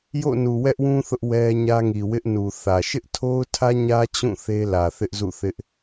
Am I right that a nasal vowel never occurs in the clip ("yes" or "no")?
no